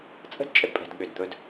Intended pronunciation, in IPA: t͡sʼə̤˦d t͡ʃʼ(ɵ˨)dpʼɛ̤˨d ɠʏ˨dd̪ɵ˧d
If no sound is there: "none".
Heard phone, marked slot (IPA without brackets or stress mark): ə˨